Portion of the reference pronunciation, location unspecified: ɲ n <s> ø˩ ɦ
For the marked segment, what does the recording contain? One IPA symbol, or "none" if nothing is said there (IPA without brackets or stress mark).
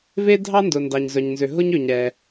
z